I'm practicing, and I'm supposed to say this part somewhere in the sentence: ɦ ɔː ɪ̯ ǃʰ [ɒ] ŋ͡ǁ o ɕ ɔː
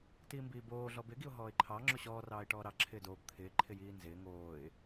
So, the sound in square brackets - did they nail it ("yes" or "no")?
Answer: no